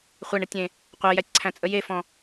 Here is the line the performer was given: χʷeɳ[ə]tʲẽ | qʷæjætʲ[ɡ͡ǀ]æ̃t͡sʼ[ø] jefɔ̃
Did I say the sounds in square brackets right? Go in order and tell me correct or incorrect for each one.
correct, incorrect, incorrect

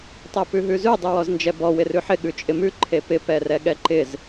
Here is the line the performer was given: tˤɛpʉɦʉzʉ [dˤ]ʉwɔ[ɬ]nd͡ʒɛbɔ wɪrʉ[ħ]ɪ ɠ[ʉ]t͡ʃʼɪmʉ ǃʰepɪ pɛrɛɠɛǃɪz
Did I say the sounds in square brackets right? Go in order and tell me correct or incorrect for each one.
correct, incorrect, correct, correct

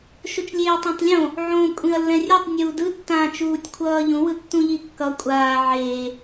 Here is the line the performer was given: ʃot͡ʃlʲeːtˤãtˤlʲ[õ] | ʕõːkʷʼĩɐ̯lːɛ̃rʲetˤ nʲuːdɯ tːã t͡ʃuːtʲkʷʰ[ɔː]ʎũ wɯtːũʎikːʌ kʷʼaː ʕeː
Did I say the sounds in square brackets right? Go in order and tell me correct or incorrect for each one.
correct, incorrect

